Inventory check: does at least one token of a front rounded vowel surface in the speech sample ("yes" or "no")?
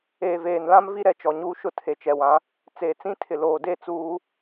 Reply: no